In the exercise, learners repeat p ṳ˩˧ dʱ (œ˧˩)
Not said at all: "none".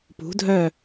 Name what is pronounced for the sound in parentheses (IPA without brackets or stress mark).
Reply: œ˧˩